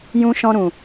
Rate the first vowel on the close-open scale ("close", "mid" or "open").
close